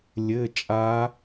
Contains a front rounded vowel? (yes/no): no